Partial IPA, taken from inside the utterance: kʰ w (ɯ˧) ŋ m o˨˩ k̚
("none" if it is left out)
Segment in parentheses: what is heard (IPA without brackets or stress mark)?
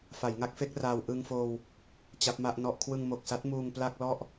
ɯ˧